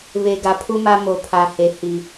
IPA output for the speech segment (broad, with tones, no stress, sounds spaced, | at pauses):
β e˨ ɡ a˨ pʰ u˦ m a˦ m o˨ pʰ a˨ h e˨ h i˨